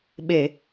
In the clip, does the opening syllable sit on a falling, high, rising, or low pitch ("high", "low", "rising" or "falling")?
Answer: low